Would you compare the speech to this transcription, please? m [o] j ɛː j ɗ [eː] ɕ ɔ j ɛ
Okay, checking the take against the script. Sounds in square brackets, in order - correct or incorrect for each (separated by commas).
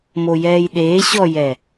correct, correct